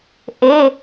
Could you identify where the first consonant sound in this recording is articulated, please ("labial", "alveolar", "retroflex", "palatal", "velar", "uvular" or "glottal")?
glottal